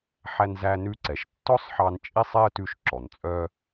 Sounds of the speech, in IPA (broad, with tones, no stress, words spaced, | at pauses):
ħæ˧nzæ˧nʉ˧ ǀɛ˩ʃtːɔ˥sˤħɑ˧n t͡ʃʼi˥sˤe˥ə̯ tʉ˧ʃ ǁɔ˩nt͡sʼœ˧